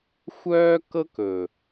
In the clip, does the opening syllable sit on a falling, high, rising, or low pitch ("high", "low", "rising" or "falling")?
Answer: high